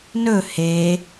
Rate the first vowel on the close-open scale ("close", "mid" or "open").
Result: mid